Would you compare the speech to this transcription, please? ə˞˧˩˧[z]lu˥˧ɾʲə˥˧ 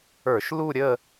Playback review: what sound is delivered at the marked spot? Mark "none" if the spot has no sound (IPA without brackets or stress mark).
ʃ